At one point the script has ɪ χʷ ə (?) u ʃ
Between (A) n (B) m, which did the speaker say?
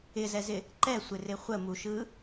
B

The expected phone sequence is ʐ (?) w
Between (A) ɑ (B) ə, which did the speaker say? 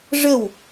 B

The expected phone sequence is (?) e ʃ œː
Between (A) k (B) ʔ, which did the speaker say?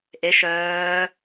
B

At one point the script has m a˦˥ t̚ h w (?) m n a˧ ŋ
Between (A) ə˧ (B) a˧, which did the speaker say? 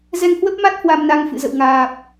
B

